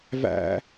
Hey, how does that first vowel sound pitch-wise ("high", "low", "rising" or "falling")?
high